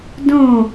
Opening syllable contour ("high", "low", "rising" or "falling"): falling